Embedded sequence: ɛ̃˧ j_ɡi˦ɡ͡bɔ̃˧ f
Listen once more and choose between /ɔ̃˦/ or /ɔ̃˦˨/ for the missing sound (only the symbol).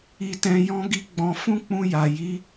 ɔ̃˦